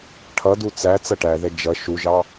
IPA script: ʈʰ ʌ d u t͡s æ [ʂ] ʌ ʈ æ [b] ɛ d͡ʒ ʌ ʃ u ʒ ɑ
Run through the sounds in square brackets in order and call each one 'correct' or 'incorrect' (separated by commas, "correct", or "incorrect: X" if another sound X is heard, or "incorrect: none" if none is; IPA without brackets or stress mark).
incorrect: t͡s, incorrect: ð